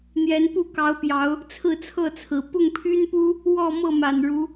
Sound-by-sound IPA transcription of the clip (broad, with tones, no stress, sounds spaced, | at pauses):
n̪ j ɛ˨˦ n p u˥˨ k ɑ˨˦ ʊ̯ p j ɑ˨˦ ʊ̯ | t͡sʰ ɹ̩˥˨ t͡sʰ ɤ˥˨ t͡sʰ ɹ̩˨˩ p ʊ˥˨ ŋ pʰ y˦ n p u˦ | w ɔ˥˨ m ɤ˥˨ m a˨˩ n ɻ u˨˦